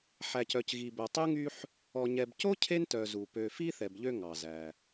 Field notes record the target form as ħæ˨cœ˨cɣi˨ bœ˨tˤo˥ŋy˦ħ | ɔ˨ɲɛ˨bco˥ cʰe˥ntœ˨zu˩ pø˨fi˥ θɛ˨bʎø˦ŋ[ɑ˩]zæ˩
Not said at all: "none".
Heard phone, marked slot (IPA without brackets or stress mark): ɑ˩